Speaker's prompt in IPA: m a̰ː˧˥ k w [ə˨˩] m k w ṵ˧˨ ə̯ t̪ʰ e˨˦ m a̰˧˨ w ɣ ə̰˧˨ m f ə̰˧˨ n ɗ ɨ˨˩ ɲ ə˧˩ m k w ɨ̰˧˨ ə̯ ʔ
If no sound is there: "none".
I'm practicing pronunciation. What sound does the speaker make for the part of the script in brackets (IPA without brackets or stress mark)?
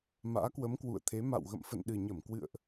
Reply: ə˨˦